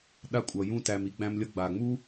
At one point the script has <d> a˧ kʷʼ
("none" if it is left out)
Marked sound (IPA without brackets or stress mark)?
ɗ